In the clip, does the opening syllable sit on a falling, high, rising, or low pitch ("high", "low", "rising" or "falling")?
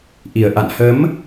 low